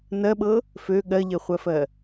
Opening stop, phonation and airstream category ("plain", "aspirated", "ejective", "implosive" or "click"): implosive